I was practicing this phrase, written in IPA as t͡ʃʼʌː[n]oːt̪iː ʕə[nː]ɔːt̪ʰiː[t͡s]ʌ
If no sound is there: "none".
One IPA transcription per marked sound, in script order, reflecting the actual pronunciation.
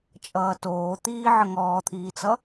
t, ŋ, t͡s

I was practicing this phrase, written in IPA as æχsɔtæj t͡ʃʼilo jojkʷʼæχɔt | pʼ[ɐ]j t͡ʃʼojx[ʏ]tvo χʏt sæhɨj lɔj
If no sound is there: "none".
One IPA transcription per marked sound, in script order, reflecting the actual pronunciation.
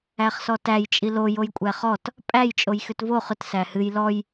æ, ʏ

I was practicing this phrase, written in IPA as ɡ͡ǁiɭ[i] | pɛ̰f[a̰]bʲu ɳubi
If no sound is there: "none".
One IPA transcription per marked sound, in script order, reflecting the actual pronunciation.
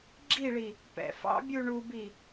i, ɑ̰

